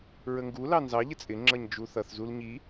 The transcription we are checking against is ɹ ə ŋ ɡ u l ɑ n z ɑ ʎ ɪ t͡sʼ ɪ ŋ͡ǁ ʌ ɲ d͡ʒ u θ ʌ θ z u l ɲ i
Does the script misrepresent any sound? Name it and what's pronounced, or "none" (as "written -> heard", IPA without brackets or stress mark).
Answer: none